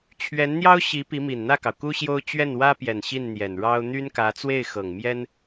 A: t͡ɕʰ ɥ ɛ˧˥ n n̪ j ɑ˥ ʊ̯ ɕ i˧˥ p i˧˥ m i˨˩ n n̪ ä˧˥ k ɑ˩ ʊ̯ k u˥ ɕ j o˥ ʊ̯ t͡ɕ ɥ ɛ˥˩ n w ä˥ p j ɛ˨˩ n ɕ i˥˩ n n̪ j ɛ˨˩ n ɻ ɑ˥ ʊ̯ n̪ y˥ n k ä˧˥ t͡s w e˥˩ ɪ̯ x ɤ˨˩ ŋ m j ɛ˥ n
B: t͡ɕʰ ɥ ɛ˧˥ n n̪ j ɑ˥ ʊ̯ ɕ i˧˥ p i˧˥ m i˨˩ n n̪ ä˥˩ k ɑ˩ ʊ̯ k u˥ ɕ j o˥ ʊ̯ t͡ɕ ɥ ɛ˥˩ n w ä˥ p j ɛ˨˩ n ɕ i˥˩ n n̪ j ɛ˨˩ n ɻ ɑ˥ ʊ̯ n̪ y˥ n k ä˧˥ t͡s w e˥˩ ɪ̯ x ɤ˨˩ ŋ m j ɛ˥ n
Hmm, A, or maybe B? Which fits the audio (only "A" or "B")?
B